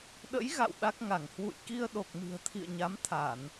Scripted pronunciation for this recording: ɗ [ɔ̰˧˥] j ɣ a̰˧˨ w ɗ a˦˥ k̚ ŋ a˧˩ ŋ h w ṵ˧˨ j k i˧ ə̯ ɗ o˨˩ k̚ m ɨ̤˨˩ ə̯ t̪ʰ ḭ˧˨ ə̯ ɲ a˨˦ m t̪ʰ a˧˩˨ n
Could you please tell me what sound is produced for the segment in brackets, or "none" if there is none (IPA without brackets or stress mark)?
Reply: ə̰˧˥